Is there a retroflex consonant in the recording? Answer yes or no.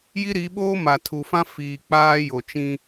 no